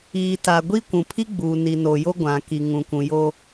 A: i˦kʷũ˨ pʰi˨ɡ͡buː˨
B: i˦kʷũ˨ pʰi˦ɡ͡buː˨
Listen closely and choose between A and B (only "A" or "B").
B